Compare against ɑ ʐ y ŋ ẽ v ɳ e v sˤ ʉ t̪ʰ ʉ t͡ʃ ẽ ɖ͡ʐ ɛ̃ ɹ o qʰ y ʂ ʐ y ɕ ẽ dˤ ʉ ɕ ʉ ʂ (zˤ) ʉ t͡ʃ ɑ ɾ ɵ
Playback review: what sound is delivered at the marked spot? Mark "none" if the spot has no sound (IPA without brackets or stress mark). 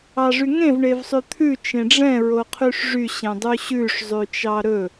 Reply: zˤ